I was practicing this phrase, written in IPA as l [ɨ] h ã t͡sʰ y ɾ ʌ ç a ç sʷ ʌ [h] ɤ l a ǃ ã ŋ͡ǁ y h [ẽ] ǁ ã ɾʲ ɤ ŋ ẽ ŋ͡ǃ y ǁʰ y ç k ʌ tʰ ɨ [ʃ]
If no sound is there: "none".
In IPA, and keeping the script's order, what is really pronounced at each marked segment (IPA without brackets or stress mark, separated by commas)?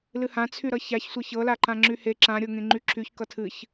ɨ, ç, e, ç